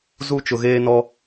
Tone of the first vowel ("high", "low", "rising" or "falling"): high